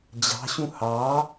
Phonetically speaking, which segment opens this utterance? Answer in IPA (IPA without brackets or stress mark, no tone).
d͡ʑ